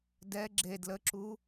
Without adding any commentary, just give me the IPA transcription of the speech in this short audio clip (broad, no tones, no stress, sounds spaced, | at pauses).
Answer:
d ɛ ɡ͡ǁ e d l ə ǁ u